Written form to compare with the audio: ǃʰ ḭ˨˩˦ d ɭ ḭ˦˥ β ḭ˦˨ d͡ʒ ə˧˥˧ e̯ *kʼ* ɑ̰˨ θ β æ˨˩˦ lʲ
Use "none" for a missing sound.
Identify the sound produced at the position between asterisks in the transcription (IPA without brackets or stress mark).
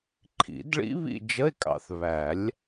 kʼ